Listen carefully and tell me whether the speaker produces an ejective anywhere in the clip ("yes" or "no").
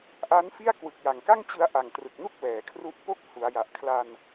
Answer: no